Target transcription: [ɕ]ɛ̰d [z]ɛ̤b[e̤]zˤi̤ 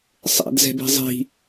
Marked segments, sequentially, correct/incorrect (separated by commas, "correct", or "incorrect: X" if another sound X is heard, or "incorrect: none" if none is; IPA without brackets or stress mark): incorrect: sˤ, correct, correct